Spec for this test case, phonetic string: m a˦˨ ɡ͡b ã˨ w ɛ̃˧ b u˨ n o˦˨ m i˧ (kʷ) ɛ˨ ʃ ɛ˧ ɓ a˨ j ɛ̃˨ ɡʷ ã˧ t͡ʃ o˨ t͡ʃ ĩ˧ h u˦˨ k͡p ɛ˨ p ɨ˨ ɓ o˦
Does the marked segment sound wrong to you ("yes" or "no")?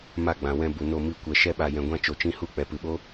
no